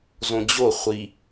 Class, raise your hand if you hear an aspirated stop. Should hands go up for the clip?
no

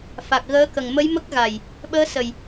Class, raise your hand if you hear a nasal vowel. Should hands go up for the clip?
no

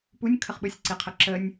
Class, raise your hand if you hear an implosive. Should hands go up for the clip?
yes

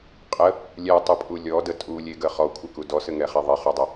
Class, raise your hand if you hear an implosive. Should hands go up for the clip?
no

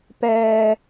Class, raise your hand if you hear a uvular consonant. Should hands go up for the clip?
no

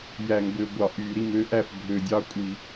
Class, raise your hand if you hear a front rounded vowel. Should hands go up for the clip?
yes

